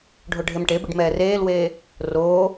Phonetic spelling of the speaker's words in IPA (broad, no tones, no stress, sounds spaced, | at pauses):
ɖʱ o ɖʱ e m ʈ e b i ɖ m ɛː r eː l w eː | r oː